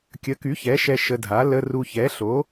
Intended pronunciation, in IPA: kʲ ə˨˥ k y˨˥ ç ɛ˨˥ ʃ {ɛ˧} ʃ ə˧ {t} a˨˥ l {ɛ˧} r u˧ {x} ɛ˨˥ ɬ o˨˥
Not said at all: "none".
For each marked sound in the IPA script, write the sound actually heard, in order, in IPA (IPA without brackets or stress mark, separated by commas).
ɛ˧, dʱ, ə˧, ç